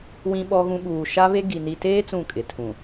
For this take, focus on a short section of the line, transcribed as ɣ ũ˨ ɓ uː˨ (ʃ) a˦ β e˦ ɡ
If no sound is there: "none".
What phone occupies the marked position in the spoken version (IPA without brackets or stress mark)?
ʃ